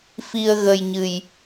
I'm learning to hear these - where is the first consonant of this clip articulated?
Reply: lips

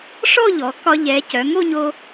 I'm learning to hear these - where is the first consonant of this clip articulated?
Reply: retroflex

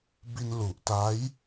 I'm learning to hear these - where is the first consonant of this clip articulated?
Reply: lips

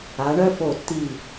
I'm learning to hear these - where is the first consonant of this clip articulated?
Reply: retroflex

